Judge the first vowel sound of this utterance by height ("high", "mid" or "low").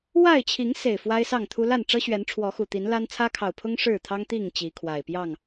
low